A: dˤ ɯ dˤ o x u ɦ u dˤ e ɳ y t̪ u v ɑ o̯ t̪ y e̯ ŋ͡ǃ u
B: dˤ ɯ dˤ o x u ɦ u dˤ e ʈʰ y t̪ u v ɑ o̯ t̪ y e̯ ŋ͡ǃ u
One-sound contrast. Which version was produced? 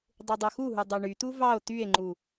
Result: A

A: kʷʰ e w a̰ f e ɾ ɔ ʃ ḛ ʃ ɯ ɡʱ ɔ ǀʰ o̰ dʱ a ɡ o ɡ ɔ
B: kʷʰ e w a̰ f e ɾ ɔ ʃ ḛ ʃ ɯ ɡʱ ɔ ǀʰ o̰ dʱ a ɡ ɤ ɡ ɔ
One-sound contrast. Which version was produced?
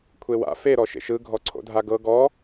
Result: B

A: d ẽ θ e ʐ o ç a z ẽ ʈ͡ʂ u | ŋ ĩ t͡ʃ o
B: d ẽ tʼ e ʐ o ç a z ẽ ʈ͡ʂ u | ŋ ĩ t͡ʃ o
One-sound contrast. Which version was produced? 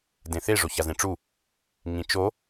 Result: A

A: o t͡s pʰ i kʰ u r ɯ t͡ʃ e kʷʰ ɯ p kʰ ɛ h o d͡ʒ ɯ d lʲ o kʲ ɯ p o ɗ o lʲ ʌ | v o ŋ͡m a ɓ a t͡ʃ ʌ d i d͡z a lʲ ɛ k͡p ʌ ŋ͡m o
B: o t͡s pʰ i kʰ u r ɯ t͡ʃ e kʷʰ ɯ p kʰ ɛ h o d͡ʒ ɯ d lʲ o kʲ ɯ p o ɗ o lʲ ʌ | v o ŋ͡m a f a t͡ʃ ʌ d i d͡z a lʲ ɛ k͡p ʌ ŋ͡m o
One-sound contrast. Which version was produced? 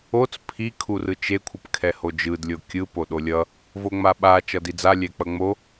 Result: A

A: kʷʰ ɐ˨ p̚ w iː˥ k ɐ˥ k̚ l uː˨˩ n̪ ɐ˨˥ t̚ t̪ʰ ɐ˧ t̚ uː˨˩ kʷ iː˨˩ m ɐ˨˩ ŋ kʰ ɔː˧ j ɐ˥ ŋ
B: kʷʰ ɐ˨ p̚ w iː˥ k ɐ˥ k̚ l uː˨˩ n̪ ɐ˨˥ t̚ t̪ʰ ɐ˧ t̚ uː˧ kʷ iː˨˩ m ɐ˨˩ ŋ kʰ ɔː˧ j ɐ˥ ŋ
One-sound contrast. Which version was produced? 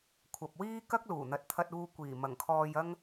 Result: B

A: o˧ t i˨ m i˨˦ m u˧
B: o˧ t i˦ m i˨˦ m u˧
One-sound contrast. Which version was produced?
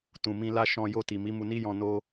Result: A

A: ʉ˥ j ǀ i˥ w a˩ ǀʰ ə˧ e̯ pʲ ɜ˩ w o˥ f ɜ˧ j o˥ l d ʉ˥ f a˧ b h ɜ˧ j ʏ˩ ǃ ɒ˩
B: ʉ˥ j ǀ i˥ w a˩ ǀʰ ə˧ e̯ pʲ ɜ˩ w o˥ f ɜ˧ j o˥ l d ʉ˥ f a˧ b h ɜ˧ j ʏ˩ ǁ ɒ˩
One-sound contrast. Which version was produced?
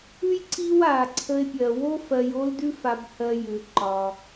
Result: A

